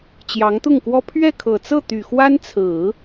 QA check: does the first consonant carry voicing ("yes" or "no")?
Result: no